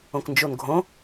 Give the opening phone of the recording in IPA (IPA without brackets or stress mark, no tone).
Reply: õ